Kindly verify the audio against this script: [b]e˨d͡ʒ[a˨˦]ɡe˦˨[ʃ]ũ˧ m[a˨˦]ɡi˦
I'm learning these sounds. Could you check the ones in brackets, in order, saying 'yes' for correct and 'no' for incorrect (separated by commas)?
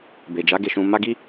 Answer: yes, yes, yes, no